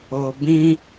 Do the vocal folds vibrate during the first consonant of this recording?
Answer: yes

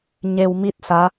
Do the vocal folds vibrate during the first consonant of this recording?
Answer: yes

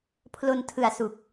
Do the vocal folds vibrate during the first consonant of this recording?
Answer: no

